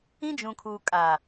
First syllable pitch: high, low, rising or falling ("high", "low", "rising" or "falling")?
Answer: high